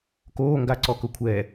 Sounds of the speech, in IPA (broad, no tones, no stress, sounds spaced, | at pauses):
k oː ŋ ɡ a ǀ ɔ k ʊ kʷʰ ɛ